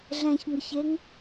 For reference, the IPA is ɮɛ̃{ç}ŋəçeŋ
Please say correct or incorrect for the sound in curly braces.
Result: correct